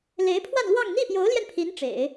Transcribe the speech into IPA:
l e˧˥ ɪ̯ pʰ w a˥˧ n l w ɑ˥˧ ŋ n̪ i˥˩ p j o˧˥ ʊ̯ l j ɛ˧ n pʰ i˧˥ n ʈ͡ʂ ḛ˨˩˦ ɪ̯

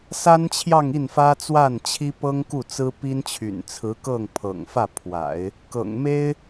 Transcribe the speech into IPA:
s a˥ n t͡ɕʰ j ɑ˥˧ ŋ i˥˩ n f ä˥ t͡s w a˥˩ n t͡ɕʰ i˥ p ɤ˥ ŋ k u˥˩ t͡s ɹ̩˥ p i˥ n t͡ɕʰ y̰˨˩ n t͡sʰ ɹ̩˧˥ k ɤ˥˩ ŋ pʰ ɤ̰˨˩ ŋ f ä˥˩ pʰ w a̰˨˩˦ ɪ̯ | k ɤ̰˨˩ ŋ m e˥ ɪ̯

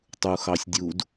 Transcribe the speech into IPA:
tˤ u x ɑ sʲ dʲ u d

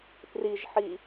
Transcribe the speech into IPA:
p r i ʒ ħ i

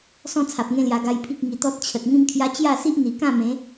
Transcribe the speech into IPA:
s ɔ̃˥˧ t͡sʰ a˨ p̚ ŋ ẽ˧ l j a˨˩ ɡ a˧ j pʰ i˦ k̚ ŋ i˨˩ t̪ ɔ˦ t̚ t͡ɕʰ ə˨ t̚ ŋ ĩ˦ m kʰ j a˦ t͡ɕ j a˥˧ s i˦ ʔ n̪ i˨˩ k ã˥˧ m ẽ˨˦

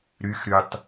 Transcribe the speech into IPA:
ɾ y x ɾ y tˤ

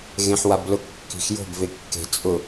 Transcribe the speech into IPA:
ɣ ẽ ħ w a b l ʊ kː i̤ x j o̤ b v e kː e̤ t͡sʼ ʊ

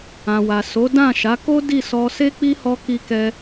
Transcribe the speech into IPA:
ã˨ w a˨ s o˨˦ d ã˦˨ ʃ a˨˦ k o˦ d i˦˨ s ɔ˧ s e˦ k͡p i˦ h ɔ˧ k i˦ k ɛ˦

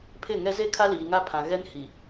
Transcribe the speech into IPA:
pʰ ɪ˦˨ ŋ ɛ˦ z e˦ kʰ a˦ l iː˨ ŋ a˦ pʰ ã˨ ɣ ɛ˦ n h i˨

